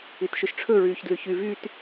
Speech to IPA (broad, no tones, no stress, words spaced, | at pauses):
itʃɵʃʈ͡ʂʰɵ ɹyːçdlyçy vyt